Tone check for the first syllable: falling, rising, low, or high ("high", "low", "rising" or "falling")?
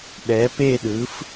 rising